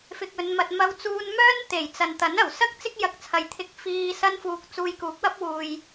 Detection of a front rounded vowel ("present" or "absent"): present